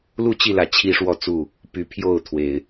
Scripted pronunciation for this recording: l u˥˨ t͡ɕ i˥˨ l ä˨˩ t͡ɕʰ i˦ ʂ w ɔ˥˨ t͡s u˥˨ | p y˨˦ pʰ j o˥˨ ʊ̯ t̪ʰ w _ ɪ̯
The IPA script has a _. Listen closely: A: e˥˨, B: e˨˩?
B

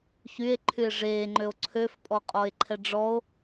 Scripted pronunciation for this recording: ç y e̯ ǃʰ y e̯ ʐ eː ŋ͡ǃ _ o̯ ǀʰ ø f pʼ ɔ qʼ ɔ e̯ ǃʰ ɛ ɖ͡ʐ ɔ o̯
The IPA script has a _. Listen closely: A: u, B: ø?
B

